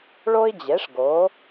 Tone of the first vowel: high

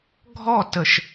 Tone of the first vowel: falling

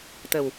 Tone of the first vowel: low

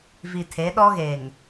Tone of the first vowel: low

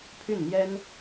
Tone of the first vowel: falling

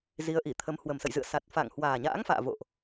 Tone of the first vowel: rising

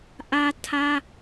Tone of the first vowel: high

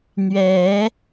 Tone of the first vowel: rising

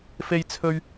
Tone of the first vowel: high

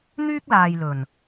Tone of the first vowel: high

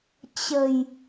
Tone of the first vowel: low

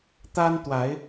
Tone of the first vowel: high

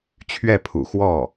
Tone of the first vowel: falling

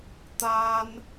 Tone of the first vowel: high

